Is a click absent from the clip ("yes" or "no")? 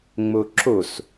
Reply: no